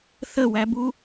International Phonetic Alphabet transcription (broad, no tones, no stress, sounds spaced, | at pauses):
θ ə w æ b u